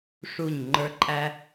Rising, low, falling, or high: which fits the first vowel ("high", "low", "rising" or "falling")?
falling